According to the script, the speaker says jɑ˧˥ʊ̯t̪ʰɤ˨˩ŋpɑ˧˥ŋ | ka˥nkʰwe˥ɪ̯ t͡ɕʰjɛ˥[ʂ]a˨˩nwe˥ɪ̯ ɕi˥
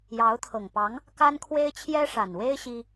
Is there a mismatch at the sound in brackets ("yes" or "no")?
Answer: no